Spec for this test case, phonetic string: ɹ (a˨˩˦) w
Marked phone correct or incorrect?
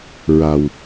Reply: incorrect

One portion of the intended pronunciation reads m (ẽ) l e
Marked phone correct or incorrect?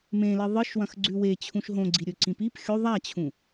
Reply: correct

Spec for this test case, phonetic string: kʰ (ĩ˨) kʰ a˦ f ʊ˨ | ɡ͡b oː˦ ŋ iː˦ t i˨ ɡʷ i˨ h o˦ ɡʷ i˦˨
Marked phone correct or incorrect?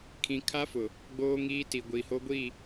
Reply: correct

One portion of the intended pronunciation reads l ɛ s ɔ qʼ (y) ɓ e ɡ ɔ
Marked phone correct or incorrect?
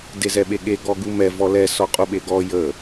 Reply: incorrect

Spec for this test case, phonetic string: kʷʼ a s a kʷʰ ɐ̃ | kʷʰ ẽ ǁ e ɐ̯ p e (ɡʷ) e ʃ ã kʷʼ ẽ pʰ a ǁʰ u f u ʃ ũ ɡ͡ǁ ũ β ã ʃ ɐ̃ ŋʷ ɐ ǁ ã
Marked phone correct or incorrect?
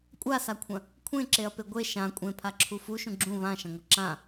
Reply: correct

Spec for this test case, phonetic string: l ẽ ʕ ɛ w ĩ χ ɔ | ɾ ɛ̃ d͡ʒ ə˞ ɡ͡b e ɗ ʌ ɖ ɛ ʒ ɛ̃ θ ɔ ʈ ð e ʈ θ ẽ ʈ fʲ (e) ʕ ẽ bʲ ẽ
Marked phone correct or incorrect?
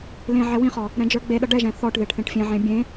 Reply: incorrect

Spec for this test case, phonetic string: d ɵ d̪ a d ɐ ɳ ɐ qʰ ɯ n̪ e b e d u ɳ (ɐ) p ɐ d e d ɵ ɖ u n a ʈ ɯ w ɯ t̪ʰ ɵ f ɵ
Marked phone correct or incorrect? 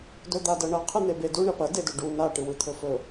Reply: correct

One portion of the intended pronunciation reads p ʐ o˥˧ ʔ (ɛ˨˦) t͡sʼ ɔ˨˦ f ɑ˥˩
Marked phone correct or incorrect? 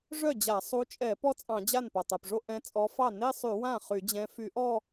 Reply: incorrect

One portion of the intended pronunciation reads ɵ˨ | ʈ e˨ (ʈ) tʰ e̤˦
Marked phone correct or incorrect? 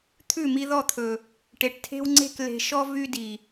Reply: correct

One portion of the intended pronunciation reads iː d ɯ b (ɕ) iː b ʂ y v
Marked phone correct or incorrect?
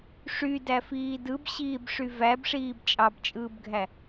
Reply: correct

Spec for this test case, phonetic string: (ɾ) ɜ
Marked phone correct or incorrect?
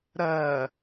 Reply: correct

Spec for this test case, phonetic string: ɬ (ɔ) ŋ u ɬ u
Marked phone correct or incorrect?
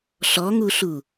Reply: correct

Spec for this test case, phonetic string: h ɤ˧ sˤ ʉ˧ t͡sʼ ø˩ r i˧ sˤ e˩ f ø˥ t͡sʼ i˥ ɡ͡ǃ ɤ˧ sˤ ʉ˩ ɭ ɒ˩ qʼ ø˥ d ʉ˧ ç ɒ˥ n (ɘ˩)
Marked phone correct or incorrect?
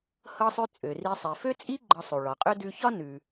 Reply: incorrect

